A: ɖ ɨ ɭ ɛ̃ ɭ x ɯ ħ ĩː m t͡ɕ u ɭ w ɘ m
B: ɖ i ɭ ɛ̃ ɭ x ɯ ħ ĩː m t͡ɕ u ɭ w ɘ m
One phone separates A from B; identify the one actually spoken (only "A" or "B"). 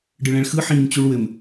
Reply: A